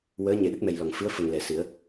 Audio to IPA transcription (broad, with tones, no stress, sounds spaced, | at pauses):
w əː˧˥ ɲ e˨˩ ɗ ə˦˥ k̚ m ɛ˨˩ j l ɔ˨˩˨ ŋ f ɨ˧˥ ə̯ f ə˨˩ ŋ l ɛ˨˩˨ s ɨ˨˩˦ ə̯